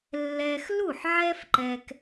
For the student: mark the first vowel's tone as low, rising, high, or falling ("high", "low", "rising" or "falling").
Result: high